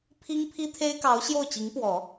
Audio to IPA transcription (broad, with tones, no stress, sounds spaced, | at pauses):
pʰ i˥ ŋ pʰ i˥ t̪ʰ e˥ ɪ̯ k ɑ˧˥ ʊ̯ ɕ j o˥˩ ʊ̯ t͡ɕ i˧˥ ŋ p w ɔ˨˩˦